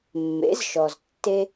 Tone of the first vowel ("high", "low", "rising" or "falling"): rising